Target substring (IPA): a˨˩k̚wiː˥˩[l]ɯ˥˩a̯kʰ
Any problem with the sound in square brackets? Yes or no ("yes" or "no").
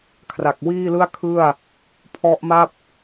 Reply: no